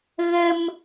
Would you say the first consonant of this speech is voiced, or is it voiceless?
voiced